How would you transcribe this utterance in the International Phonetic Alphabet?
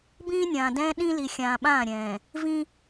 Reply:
bĩː˦nʲãː˨dɛ̃ː˦ ɗĩ˦li˨ xʲãː˨ɓãː˦˨ɾʲɛ̃ː˨ | vĩ˦

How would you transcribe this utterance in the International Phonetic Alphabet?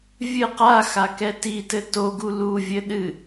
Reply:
vʲɨ qa xakɛtitɘ toɡu luvʲɘ ɗɨ

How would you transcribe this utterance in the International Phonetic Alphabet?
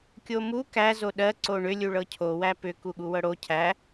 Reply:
kʲomu kæ zoɗɜ ǀoɳʏ lʲuɭɤcʰo wæpʏ kuɠuwɤɽo cʰæ

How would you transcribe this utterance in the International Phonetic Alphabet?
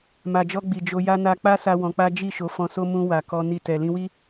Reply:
ma˨d͡ʒɔ˧ ɡ͡bi˨d͡ʒo˧ ja˧na˧k͡pa˦sa˧ wɔ̃˧k͡pa˦ d͡ʒi˦˨ ʃo˨˦fɔ̃˧so˦ mũ˧ wa˨kɔ˧ ni˧tɛ˨ lĩ˧wi˦

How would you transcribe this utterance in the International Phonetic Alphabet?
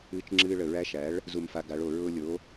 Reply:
ɨː˧t͡ʃŋ͡ǁɨː˧ ɭə˨˩ɹæ˧˥ʃæ˩˥ɭ | zu˧mfa˧ɡa˩˥ɭo˨˩ ɹʊː˧lʲo˩˥

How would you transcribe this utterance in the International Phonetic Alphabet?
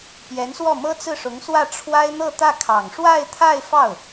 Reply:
pjɛ˧˥nswɔ˥˩ mɤ˥t͡sɹ̩˥˩ʂʊ˧˥ŋswä˥˩ ʈ͡ʂʰwa˥ɪ̯n̪ɤ˥˧t̪ä˥˩kʰɑ˨˩ŋ ʂwa˥˧ɪ̯t̪ʰa˥˧ɪ̯fɑ˥˩ʊ̯

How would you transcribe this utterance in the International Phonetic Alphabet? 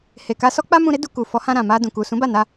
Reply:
he˨ ka˧sɔ˦ k͡pa˦mũ˧ɾe˦ du˧ ku˨fɔ˨˦hã˧ɾã˨ ma˧dũ˨ku˨ sũ˨˦ba˦˨ na˧

